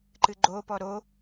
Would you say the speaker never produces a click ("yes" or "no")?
no